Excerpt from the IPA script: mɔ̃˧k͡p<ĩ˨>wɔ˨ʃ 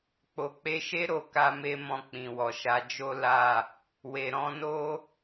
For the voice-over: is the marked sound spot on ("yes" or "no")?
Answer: yes